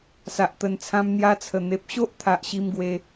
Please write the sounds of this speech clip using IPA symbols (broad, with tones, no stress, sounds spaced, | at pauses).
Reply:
s a˨ ʔ t̪ ə˨˩ n t͡sʰ ã˧ m n̪ j a˧ t͡sʰ ə˨˩ n̪ e˨ p̚ ɕ o˦ ʔ t̪ʰ a˨ ʔ ɕ i˧ m ɡ w e˧